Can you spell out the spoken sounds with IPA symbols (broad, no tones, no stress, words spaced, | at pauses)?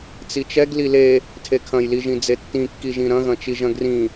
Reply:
t͡sit͡ʃɛɡ lile | tʰekʰɐ̃jliʒĩ d͡zetːĩkːiʒĩ ɾɐ̃ɣɐ̃t͡ʃiʒɐ̃ ɡrĩ